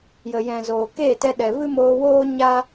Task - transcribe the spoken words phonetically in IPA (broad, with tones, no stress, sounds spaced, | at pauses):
j ə˨ j ɛ̃˨ z oː˨ k eː˦˨ t ɛ˧ ɗ ɛ˨ v ɨ˦ m oː˧ w oː˦ ɲ a˦